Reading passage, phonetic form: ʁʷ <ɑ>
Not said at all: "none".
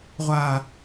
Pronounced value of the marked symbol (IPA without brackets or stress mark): a